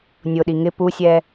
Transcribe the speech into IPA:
nʲʊɗi ŋɪ pusʲɛ

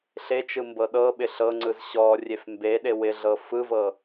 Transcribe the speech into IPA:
ɬet͡ʃɯ mbɤɗɤɓɪ ɬɤŋ͡ǀɯz ɕɔ rʲefmbeɗe wɪɮɤ fɯvɤ

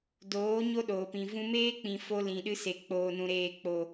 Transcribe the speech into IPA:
doː˨˦ ɲo˦ɗoː˨pĩ˨ vũ˧meː˦k͡pĩ˨ fo˧lĩ˨ɗɨ˧se˨ k͡poː˨nũ˨ɾeː˨k͡po˨

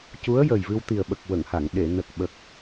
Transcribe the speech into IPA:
cu˧˥ə̯jə˨˩jvɨ˧w t̪i˨˩ə̯ɓə˨˩k̚ wə˨˩˨ŋha˨˩˨ŋ ɗe˨˩˨ nə˨˩k̚ɓə˨˩k̚

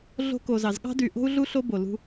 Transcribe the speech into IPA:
ɮo̤˥ko˧zɑ˧z ɠɑ̤˥dy˧ ʔo̤˥u̯ɮu˥ɬo˥ bo˧lṳ˥

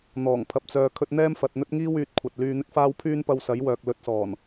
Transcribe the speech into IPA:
n̪ɔː˨˩ŋpʰɐ˨p̚ t͡sœː˨ kʰɵ˧t̚n̪ɛː˥mfɐ˨t̚n̪ɵ˥t̚ ŋiː˥w yː˨˥t̚kʷʰɐ˨t̚ lyː˧n̪ɪ˥k̚faː˥w pʰyː˥npɐ˧wsɐ˨˥jwœː˨k̚ lɵ˨˥t̚sɔː˨˩n

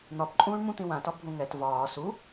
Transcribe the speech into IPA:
n̪ɒpǃʼũːɳmũ t̪ĩwãtɒ bʱũŋɛt vɒː su

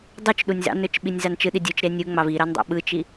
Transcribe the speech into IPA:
dˤut͡ʃ ɗunʲzɑ̰nøt͡ʃ ɓinʲzɑnt͡ʃɯɗi dʲut͡ʃɾe nʲuŋ͡mɑv i ɾɑndˤɑ̰ɓɯt͡ʃi

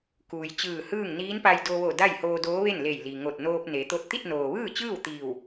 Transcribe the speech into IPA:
kuː˩jt͡ɕɯː˧˩hɯː˥˨ŋ niː˧˥npa˧jdo˧ʋo˧˩ da˥˨jhoː˧doː˧˥ʋe˥˨n le˧˩jli˩ŋo˧˩t̚ noː˧p̚ne˩˧ t̪o˥˨t̚ t̪i˥˨t̚noː˩ʋɯː˥˨t͡ɕɯː˥˨w t̪iː˧˩w

